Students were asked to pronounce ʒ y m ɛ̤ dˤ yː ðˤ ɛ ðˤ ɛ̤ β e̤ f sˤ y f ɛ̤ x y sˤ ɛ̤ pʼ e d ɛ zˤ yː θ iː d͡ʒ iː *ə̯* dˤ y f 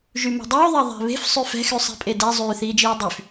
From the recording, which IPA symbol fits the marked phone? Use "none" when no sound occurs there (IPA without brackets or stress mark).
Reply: ə̯